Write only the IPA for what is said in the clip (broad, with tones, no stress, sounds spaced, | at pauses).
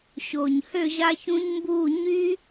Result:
ɕ o˨˩ ɲ h ø˥˨ ʑ a˦˥ ç ũ˦˥ ɲ m b uː˥˨ ɲ y˦˥